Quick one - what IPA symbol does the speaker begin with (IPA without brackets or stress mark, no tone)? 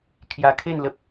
kʰ